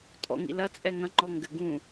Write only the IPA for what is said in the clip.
tʼɔ̰ŋḭlɐ t͡sʼɛŋɐ̃ ŋ͡ǃɔŋɡɘɡũ

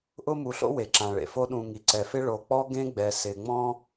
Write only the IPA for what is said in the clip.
ʔʊ˥mu˨ɬo̰˥we˩ ǁã˩ɭḛ˩fo˦ɗũ˨ ŋi˩ǀɛ˩fɪ˦ ɭo˨k͡pɔ˥ ɡẽ˥ɡ͡bɛ˩sɪ˩ŋ͡mɔ̃˥

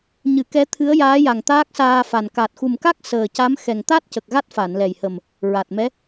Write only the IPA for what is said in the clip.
ɲɨ˨˩˦kɛ˧˥ t̪ʰɨ˧˥ə̯jaː˧˥ja˨˩ŋ t̪aː˦˥k̚saː˧fa˨˩n ka˨˩t̚xu˨˩mka˦˥k̚ səː˨˩ca˧˥m xɛ˨˩ŋt̪a˦˥t̚cə˨˩k̚ ɣa˦˥t̚fa˨˩˨nlɛ˨˩jhə˨˩m | ɹa˨˩t̚mɛ˧˥

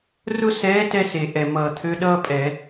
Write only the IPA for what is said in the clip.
rʊ˥sɛː˧˥ tɛ˥ se˨˩ʔɛ˨˩mʌː˨˩t̪ʰø˧˥ ɗʌː˥pʼɛ˧˩˧

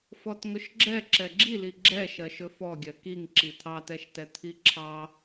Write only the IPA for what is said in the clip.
fɔtŋɵʃɡ͡ǁɛ ǁɛɡ͡ǁili ɡ͡ǁɛ ʃɜʃɵfɔɡʲɜ kiŋǁi t̪ʰɑtɛʃtɛ t̪ʰiǁʰɑ

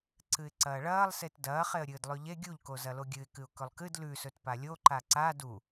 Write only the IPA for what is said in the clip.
ǀɨɪ̯ǀɐːɭɐːlˠ setdɐː χeə̯ɾʲɨːdlˠʉʎe ɡʲuʎko zɐloɡʲɨɪ̯kɨʊ̯ kɵlˠkɨd lʉsɵt palʲo ǃaǀa du

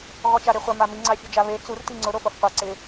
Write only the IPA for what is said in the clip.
ɣɔt͡ʃaɾeχʷa mami ŋ͡ǀafʲud͡ʒaβe t͡sur tiŋ͡ǀʊ ɾofofqʷa ǀɪ

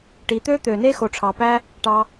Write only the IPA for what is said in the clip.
ʈi˨˦ t̪ø˦t̪ø˨ne˦xo˨ ʈ͡ʂʰɑ˨pæ˦ | ʈɑ˧

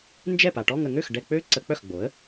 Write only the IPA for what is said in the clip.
nd͡ʒɛ˥˩pa˨ʈɔ˥˧ŋ ə˩˥ŋø˥˩x ɖɛ˥˧k͡pø˥ ǀə˨˩˦k͡pœ˥˩xɡ͡bo˩˥ə̯

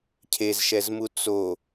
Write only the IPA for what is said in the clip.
cʰezʃɛzmu t͡so

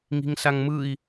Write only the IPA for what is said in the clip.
ŋi̤ŋsaŋmɯi̯

